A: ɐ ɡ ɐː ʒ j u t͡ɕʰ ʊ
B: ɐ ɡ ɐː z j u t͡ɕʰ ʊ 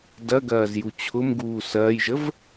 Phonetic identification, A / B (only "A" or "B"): B